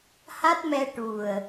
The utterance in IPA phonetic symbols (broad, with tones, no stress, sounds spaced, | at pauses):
h a˦˥ t̚ m ɛ˧ ʈ u˨˩ ə̯